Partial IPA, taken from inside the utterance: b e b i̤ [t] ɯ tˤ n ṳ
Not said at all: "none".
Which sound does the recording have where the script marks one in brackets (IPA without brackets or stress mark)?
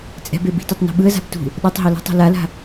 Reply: t